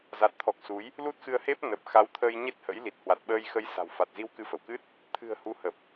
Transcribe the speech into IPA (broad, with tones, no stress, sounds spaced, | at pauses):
z a˨˩ t̚ t̪ʰ ɔ˨˩ k̚ s u˨˦ j | l u˦˥ t̚ x ɨ˧ ə̯ h e˦˥ p̚ n ə˨˩ p̚ x a˨˦ w t̪ʰ ə˧ j ɲ e˦˥ t̚ h ə̰˧˥ j l i˨˩ t̚ h w a˨˩ t̚ ɓ əː˧ j x ə˧ j s a̤˨˩ w f a˨˩ t̚ z i˧ w k ɨ˨˦ f ə˧˩ w k ɨ˦˥ t̚ | t̪ʰ ɨ̤˨˩ ə̯ h u˨˦ h ə˨˩ p̚